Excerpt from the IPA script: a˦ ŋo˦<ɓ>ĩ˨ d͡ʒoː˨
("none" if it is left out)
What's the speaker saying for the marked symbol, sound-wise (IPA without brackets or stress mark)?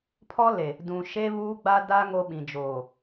ɓ